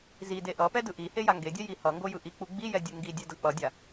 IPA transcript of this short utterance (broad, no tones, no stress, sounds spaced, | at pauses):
z i d e ʔ ʌ p ɛ d ɯ ʔ i h e j a ŋ ɡ e dʲ ɛ j i h ʌ ŋ ɡ o j ɯ ʔ i k͡p u ɡ͡b i j ɛ dʲ u ŋ ɡ i dʲ ɛ d ʌ k͡p ʌ dʲ a